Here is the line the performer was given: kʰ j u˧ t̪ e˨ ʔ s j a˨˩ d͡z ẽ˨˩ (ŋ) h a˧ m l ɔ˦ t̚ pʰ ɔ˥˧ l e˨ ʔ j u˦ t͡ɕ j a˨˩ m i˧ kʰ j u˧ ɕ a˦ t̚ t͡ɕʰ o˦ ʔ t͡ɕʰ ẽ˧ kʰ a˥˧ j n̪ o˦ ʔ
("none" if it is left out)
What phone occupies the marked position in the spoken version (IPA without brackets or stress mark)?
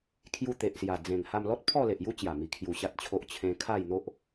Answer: ŋ